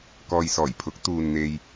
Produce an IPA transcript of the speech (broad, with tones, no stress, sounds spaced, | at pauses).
k ɔː˨ j s ɔː˨˩ j pʰ ʊ˨˥ k̚ t̪ uː˨ n n̪ e˨ j